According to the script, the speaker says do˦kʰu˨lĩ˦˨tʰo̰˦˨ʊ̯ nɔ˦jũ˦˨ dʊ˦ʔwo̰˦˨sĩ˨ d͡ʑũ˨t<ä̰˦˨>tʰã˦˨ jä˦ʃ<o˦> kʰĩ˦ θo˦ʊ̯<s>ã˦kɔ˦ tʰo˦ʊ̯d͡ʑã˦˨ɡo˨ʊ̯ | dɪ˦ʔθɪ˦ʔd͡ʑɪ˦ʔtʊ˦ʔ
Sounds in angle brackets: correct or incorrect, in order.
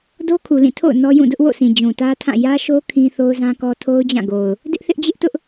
incorrect: ä˦, correct, incorrect: z

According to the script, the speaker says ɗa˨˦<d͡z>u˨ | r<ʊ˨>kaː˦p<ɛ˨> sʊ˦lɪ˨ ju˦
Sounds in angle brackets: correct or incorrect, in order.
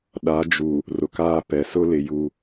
incorrect: d͡ʒ, correct, correct

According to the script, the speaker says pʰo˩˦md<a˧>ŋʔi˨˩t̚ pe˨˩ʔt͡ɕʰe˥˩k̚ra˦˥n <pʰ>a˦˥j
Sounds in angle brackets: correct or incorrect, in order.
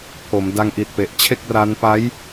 correct, incorrect: p

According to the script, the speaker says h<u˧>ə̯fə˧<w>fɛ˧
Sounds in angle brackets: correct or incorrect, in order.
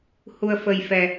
correct, incorrect: j

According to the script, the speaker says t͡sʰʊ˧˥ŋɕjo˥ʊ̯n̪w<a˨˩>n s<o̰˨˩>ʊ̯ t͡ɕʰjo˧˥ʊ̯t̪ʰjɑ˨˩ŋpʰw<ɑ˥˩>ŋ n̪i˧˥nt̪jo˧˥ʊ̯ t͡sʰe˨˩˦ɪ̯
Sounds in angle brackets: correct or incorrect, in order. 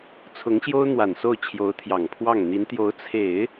correct, incorrect: o˥˩, correct

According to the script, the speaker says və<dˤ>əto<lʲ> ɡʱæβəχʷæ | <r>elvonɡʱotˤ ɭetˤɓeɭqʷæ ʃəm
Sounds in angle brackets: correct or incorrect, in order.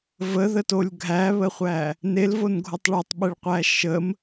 incorrect: ð, correct, incorrect: n

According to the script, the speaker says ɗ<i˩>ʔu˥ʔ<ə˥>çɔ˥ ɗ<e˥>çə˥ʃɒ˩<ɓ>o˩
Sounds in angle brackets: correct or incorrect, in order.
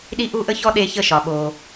incorrect: i˥, correct, correct, correct

